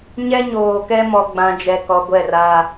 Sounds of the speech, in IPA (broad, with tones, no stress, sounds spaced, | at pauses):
ɲ ɛ˦ ɲ oː˨ k ɛ˦ m ɔ˨ ɡ͡b ã˨ d͡ʒ ɛ˨ k ɔ˨ ɡʷ ɛ˦˨ r a˦